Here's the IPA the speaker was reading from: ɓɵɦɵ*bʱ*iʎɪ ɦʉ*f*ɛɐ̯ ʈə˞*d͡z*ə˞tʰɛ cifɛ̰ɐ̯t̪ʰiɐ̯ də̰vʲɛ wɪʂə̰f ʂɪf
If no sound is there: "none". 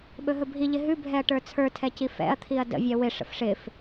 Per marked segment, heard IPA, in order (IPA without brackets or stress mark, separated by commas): bʱ, bʱ, t͡sʰ